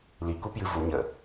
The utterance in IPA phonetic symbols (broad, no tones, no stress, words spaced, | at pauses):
likupjɨ vu ɲə